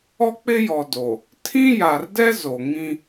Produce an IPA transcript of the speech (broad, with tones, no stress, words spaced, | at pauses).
ɔ˦k͡pɪ˦jɔ˨do˨ | tʰĩ˦ja˨rdɛ˦ zo˨ŋĩ˦